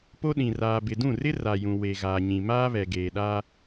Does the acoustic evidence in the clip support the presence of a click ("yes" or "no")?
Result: no